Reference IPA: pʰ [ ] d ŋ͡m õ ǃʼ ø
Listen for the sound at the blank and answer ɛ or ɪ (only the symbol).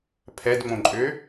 ɛ